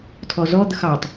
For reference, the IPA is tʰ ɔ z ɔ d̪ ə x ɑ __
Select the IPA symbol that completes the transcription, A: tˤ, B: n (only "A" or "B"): A